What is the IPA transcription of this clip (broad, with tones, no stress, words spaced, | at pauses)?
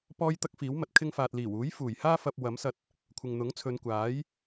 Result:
pɔː˥j t̪ɐ˥k̚fiː˨˥wmɐ˨t̚ kʰɪ˧ŋfaː˨t̚liː˨˩wuː˨˥j fuː˨˩jhaː˥ fɐ˧p̚ wɐ˨˥msɐ˧t̚ | kʷʰɪ˨ŋn̪ʊ˨˥ŋt͡sʰɵ˨˧n kʷaː˨˥j